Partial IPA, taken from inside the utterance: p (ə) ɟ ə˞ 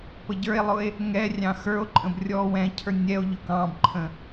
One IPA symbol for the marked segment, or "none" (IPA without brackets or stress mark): ə